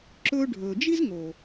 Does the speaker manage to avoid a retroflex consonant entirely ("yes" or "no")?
no